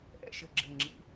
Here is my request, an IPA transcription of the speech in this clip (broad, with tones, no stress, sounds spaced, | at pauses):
ʔ ɛ̰˥˨ ʃ ɘ˧˩ ɡ͡ǁ ɘ˧˩ ŋ͡ǁ ḭ˨˥